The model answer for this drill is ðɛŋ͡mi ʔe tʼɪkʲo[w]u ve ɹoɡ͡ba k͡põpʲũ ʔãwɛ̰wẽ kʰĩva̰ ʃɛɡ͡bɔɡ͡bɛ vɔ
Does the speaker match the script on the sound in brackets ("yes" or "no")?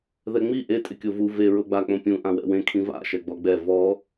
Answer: no